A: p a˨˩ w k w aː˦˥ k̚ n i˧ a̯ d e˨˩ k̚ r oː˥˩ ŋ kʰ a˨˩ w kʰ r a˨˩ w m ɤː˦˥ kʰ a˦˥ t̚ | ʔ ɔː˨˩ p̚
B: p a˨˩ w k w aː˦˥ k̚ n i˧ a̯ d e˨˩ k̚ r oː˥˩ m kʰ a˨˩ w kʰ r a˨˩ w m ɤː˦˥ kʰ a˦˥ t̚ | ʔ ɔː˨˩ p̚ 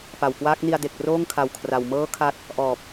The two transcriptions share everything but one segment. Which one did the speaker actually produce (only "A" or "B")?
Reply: A